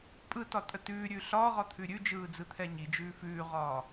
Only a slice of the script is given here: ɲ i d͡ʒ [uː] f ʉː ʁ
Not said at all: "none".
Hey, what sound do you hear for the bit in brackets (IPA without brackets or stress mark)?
ʉː